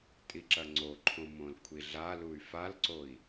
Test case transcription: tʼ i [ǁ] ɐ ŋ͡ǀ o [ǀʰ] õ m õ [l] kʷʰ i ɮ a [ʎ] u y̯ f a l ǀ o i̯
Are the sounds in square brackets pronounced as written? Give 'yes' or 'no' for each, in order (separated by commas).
yes, no, yes, no